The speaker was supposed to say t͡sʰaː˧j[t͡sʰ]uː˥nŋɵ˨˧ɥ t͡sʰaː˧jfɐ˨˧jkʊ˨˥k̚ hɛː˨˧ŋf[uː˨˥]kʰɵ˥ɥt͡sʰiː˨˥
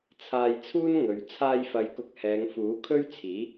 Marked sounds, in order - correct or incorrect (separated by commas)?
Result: correct, correct